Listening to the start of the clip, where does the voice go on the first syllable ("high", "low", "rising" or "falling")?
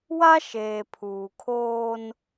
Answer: high